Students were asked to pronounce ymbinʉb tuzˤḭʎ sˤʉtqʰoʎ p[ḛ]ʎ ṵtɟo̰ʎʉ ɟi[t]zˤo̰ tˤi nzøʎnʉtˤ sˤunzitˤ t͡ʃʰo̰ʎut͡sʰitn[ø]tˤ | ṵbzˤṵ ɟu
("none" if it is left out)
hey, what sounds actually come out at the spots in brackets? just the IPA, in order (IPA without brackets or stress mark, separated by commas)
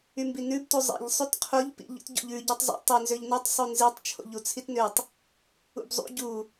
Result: ḭ, tˤ, ø